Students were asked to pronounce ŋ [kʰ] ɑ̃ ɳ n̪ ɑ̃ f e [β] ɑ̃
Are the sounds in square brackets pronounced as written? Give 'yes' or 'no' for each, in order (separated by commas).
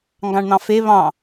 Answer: no, yes